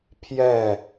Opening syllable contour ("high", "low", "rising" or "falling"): falling